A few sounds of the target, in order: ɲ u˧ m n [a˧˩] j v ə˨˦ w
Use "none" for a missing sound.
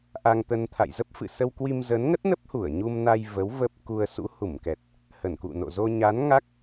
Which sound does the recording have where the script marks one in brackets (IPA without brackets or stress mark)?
a˧